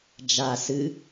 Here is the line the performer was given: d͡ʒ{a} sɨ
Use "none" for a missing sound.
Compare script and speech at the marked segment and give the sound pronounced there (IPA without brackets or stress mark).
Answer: a